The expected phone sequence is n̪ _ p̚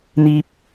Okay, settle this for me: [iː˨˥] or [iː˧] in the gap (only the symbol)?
iː˧